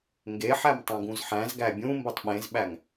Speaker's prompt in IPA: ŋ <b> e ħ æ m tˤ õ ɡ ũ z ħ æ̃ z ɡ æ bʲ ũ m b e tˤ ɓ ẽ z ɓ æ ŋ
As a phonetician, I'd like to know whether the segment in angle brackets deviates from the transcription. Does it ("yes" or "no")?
yes